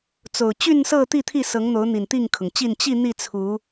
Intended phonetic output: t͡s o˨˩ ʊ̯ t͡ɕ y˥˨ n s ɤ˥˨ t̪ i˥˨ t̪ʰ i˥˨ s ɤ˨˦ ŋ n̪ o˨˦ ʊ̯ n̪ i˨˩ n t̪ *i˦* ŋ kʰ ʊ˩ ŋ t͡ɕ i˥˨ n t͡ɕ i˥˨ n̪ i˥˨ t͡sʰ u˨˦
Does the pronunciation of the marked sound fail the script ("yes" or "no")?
yes